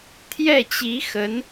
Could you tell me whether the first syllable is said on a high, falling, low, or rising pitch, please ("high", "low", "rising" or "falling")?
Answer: falling